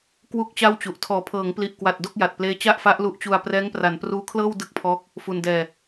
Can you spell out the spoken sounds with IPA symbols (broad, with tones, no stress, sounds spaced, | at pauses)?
k w u˥˩ k̚ t͡ɕ a˥˩ w t͡ɕ u˨˩ ʔ tʰ ɔː˩˦ pʰ ɤː˩˦ ŋ p l i˨˩ ʔ k w a˨˩ t̚ d o˥˩ k̚ j a˨˩ t̚ p l eː˦˥ t͡ɕ a˥˩ ʔ f a˦˥ ʔ l u˦˥ ʔ t͡ɕ u˧ a̯ p r ɛː˦˥ ŋ p r a˩˦ n p r uː˦˥ kʰ l ɤː˥˩ w d ɯ˥˩ k̚ pʰ ɔː˦˥ k̚ | f u˧ n d ɛː˧